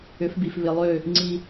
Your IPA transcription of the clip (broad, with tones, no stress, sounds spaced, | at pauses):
ʏ˨˦ f b i˨ f β ɪ˨ lˠ ø˦˨ | ŋ͡ǀ i˦